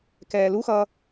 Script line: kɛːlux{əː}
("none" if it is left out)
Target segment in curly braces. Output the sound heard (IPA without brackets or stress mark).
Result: ʌː